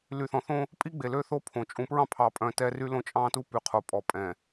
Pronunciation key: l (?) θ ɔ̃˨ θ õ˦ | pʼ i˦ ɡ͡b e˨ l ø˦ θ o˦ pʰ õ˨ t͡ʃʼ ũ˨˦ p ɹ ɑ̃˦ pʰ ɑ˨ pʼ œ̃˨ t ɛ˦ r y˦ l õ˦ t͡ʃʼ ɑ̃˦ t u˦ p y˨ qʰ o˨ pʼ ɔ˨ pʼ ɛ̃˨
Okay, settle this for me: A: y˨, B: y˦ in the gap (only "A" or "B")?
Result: A